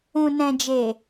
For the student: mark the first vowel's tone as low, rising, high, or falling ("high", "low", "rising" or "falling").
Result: low